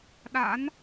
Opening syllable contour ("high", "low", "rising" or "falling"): rising